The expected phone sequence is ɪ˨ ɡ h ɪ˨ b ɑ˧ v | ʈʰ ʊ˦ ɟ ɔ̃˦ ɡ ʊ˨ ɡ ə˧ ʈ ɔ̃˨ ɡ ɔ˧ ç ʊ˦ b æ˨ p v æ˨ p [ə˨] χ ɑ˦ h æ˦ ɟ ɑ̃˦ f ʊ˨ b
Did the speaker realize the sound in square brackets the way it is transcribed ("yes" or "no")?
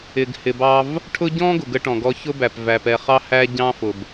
no